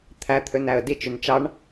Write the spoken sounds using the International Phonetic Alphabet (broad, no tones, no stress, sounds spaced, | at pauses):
t̪ʰ æ t̪ʰ ø n æ ə̯ d i t͡ʃ y n t͡ʃ ɑ ɳ